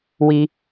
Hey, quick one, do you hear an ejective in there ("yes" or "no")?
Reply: no